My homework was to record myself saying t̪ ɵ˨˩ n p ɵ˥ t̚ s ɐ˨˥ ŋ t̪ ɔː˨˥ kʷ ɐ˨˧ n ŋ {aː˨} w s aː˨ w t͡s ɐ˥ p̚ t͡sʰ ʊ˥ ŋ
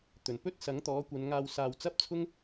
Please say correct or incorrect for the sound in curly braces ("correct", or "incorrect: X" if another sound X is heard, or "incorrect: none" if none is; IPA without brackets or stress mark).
incorrect: aː˧